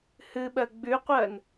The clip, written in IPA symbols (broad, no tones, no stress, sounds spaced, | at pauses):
h ɨ ɓ ɜ ɡ͡b ʉ qʷ ɜ n